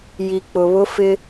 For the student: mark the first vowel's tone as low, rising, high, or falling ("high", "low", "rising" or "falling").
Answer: low